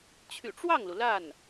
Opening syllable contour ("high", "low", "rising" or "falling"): low